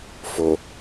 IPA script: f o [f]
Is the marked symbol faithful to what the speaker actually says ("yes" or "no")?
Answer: no